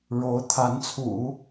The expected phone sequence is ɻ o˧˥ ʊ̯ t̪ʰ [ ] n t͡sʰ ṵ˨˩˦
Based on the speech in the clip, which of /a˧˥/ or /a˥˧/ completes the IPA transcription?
a˧˥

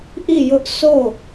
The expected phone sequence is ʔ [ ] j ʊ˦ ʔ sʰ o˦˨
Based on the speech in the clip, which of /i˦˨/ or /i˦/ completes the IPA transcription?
i˦˨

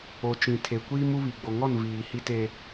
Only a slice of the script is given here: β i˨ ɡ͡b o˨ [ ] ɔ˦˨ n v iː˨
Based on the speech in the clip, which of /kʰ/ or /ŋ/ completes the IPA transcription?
ŋ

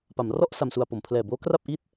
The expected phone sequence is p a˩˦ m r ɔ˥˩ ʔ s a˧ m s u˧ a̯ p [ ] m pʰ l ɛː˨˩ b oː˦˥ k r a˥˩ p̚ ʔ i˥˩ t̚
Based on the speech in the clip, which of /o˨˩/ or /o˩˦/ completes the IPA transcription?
o˩˦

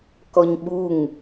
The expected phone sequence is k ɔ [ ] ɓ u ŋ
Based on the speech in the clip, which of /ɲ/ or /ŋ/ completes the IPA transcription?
ɲ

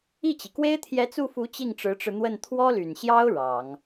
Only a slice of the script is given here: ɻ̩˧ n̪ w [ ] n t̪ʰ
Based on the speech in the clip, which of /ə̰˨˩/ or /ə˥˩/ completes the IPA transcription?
ə˥˩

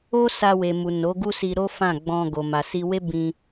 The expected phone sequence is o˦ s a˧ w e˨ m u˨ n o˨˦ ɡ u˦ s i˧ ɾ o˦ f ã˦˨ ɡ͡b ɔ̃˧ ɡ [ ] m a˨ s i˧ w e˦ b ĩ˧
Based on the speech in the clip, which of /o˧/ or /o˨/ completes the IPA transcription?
o˨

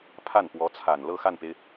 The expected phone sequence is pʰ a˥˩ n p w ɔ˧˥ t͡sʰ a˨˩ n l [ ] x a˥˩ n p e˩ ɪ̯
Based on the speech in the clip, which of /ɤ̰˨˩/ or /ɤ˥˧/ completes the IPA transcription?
ɤ˥˧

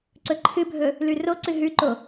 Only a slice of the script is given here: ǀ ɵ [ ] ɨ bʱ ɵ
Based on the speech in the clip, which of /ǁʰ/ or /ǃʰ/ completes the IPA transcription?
ǃʰ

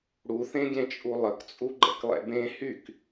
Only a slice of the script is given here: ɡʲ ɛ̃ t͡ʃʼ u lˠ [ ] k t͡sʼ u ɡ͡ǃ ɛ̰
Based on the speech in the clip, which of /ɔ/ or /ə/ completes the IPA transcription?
ə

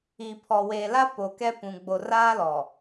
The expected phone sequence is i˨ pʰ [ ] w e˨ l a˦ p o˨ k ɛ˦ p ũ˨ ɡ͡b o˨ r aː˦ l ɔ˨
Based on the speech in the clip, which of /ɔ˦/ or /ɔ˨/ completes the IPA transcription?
ɔ˨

